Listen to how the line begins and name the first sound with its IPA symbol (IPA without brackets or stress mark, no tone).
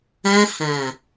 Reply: ã